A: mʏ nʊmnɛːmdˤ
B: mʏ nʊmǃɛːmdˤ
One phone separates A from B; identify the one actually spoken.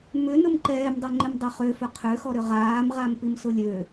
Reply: B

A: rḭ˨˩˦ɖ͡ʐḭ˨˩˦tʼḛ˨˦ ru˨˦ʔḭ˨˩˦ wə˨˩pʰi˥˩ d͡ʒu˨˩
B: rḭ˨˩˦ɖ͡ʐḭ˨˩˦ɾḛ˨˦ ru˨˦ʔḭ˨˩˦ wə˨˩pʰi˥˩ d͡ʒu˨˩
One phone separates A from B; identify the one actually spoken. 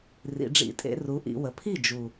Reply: A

